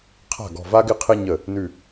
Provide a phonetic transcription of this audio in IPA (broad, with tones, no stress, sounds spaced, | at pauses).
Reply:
qʰ a̤˥˩ ɡ ɔ̤˧˩ v a˥ ɡ ɪ˥ qʰ ɪ˥ ɲ ə˥˩ | n ʉ˧˩